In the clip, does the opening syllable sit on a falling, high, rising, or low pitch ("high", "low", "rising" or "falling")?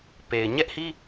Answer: low